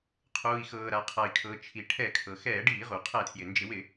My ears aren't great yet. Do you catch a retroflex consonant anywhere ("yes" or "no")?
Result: yes